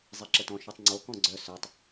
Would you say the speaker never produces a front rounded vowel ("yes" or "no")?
no